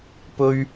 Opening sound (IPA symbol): p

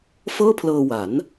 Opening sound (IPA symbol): f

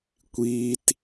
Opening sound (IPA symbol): kʷ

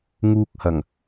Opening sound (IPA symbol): ŋ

